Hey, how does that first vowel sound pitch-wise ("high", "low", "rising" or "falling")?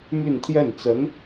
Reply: falling